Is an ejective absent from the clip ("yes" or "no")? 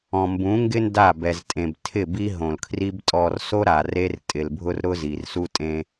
no